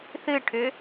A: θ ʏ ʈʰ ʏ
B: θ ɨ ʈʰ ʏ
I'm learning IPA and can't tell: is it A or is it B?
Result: B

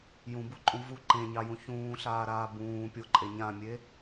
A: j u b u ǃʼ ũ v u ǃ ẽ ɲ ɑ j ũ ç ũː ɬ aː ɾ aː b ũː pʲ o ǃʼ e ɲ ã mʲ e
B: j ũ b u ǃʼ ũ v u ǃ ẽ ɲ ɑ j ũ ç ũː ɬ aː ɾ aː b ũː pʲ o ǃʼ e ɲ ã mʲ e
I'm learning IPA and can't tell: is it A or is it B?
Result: B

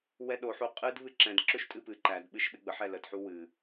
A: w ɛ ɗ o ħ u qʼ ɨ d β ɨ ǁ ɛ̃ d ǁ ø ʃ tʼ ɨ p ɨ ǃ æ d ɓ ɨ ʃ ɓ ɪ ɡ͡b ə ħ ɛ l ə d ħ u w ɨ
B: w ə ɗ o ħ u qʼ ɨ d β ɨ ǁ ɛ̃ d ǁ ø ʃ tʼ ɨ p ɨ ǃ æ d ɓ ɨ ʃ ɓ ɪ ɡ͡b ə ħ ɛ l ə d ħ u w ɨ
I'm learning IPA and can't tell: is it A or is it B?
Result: A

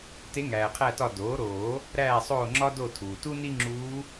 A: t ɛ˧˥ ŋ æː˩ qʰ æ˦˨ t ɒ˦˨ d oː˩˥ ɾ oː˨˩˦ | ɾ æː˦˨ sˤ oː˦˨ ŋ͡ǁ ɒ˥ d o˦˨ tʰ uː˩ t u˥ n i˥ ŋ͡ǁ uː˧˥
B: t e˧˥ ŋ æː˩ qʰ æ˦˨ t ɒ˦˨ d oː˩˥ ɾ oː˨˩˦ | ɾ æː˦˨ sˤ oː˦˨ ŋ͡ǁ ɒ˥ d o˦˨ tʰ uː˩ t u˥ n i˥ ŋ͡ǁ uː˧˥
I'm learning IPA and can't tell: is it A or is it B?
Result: B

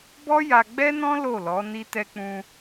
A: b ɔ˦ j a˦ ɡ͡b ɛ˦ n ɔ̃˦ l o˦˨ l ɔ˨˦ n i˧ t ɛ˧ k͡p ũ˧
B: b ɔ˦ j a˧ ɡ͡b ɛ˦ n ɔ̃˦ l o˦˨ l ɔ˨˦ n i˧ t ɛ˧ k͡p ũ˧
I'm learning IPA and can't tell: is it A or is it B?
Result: B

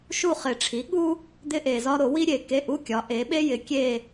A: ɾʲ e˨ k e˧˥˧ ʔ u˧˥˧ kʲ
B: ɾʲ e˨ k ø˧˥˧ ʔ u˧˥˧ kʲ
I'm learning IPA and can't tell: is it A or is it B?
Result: A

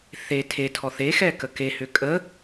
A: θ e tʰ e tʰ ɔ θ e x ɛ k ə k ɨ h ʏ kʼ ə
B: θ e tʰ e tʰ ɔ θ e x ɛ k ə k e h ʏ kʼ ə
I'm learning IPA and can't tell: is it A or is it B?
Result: B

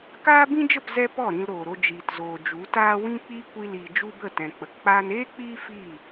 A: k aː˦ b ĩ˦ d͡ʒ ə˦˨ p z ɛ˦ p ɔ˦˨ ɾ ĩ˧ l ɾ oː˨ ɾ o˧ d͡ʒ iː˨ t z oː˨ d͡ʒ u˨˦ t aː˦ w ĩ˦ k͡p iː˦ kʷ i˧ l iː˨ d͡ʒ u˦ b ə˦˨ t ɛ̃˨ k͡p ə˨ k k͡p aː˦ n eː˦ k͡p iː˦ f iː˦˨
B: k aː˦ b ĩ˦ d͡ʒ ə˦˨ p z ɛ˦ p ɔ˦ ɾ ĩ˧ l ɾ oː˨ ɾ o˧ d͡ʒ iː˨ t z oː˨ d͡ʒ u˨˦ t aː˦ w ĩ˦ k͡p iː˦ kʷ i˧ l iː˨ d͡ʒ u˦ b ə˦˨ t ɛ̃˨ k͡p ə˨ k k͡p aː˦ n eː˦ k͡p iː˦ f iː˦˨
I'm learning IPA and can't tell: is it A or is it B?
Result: A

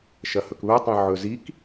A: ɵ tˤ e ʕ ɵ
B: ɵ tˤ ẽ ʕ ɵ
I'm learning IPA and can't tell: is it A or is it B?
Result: B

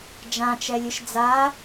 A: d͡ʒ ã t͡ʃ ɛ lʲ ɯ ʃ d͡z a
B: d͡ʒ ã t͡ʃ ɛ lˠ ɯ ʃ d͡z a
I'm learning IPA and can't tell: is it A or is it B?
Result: A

